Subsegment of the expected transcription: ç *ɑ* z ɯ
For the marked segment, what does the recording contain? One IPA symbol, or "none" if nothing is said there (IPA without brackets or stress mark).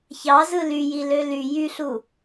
ɑ